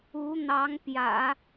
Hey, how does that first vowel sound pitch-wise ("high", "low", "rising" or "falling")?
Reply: rising